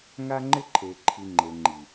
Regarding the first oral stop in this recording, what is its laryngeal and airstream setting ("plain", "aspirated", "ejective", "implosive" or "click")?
click